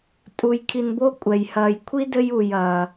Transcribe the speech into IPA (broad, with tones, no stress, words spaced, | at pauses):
tʼu˩j kʰi˨nbo˥ kʷʼɛ˩jhɐː˨j kʷʰi˥dɘ˦ju˩j ɐː˩